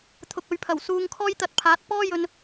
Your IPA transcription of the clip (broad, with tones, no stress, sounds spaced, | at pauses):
t̪ʰ ʊ˨ k̚ ɵ˨ ɥ pʰ ɐ˨˩ w s uː˧ ŋ kʰ ɔː˥ j t̪ ɐ˧ t̚ pʰ aː˨˥ t̚ p ɔː˥ j ɵ˧ n